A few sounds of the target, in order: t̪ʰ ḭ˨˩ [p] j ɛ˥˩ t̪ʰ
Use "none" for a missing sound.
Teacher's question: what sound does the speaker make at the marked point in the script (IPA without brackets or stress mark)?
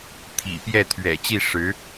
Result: p